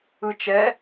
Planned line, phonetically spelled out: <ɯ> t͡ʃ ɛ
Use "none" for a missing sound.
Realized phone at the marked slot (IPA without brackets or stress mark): ɯ